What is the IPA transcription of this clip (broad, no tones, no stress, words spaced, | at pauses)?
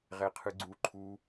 ʁɛqʰɯɡ͡ǀu ǃʰu